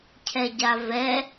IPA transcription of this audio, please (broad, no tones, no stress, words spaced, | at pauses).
cʰɛɟavɛ